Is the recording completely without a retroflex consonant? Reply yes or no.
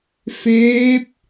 yes